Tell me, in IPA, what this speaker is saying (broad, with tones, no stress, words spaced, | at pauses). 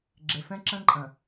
ɡ͡ǁe˨fɛ̃˦ǁɐ̃˦ǃʼɐ̃˨